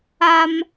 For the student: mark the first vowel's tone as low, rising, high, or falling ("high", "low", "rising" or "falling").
high